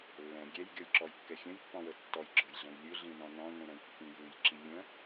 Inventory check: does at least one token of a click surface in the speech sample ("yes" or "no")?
yes